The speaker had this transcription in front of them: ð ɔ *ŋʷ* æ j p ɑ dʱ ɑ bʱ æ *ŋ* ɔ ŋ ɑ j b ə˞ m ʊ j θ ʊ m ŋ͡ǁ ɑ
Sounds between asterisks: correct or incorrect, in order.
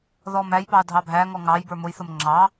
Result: incorrect: m, correct

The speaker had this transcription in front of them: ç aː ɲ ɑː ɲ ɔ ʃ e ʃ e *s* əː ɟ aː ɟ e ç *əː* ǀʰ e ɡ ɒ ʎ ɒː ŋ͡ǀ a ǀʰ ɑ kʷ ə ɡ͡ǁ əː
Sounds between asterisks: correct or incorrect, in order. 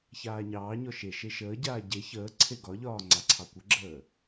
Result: incorrect: ʃ, correct

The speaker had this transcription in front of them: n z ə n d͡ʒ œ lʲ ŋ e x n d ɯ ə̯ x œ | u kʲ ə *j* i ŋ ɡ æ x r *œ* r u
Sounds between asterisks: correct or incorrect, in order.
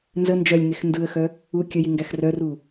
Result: correct, correct

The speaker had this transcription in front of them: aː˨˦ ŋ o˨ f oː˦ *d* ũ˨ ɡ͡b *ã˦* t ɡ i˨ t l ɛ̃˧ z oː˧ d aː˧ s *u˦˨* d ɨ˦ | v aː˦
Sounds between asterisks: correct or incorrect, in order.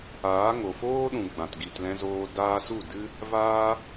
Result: incorrect: ɗ, incorrect: ã˨, correct

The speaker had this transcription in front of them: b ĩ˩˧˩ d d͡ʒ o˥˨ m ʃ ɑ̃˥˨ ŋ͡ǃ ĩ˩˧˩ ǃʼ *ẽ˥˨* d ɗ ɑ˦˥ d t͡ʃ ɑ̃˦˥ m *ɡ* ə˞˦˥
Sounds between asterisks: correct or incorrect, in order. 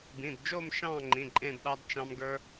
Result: correct, correct

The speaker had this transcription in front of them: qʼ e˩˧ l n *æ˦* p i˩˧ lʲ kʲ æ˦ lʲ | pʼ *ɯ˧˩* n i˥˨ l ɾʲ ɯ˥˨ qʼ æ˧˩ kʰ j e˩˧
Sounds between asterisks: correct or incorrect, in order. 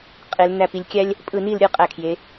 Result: incorrect: æ˧˩, correct

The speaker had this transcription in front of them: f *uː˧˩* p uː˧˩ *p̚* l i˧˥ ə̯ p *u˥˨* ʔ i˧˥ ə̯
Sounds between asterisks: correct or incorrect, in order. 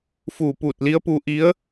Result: correct, incorrect: t̚, incorrect: u˧

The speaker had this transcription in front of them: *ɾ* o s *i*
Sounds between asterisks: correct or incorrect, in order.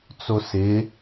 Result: incorrect: t͡s, incorrect: ɪ

